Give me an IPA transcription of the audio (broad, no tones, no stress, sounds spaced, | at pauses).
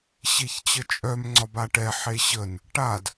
ɕ e ç t͡ɕ ə t͡ʃʼ œ m ŋ͡ǀ ɒ b a ʈ ɛ ħ e ɕ ə n | ʈ a d